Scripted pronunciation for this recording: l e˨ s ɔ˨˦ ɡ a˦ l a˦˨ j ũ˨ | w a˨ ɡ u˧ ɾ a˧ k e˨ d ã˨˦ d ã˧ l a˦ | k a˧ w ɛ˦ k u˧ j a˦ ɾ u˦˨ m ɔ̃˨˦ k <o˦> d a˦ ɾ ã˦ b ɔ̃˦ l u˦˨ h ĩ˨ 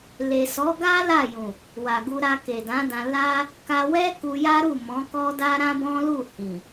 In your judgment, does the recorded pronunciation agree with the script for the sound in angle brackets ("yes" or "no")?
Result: no